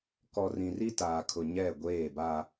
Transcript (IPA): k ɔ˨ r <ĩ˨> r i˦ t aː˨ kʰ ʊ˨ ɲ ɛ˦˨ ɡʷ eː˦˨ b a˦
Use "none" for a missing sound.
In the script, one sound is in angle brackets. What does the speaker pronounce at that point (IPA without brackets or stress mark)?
ĩ˨